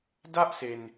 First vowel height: low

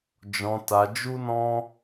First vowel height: mid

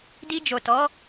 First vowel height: high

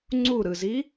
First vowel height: high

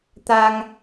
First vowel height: low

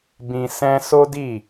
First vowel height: high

